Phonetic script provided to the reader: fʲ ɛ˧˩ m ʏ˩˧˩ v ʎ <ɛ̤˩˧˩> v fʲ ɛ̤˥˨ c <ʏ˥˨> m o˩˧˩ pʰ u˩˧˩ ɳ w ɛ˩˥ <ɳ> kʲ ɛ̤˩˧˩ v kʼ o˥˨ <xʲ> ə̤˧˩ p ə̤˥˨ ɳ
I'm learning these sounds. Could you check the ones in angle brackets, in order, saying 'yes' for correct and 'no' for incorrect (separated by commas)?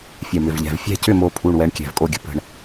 yes, yes, yes, no